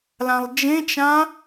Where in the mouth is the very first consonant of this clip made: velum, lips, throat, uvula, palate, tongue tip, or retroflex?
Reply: tongue tip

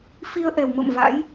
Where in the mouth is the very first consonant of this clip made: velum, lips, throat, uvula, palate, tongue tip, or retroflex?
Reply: lips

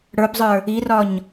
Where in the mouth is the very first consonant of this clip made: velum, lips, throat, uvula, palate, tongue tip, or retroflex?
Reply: retroflex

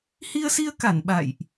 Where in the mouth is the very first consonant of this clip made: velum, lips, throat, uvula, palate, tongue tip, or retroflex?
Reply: throat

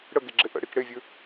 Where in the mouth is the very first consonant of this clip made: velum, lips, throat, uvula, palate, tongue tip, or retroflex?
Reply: retroflex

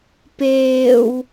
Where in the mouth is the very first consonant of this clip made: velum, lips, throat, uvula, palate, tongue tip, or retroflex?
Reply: lips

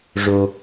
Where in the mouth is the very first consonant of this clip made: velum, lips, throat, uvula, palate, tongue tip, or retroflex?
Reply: retroflex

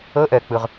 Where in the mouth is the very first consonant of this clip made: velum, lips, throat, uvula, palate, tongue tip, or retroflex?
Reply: throat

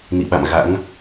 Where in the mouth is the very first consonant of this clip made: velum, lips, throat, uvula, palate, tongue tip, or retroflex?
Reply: tongue tip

